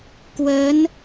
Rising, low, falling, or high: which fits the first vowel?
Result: rising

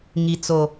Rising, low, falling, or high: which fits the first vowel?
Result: low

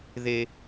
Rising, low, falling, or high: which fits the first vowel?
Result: high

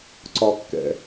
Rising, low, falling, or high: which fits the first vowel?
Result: low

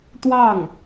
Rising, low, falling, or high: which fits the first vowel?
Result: falling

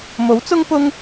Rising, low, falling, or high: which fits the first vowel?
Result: rising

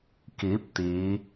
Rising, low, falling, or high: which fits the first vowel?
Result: rising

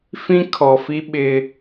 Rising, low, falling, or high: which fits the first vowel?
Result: high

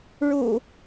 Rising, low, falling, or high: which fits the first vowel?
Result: low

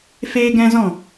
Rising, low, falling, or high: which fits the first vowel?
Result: high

